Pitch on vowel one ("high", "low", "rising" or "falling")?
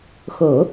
low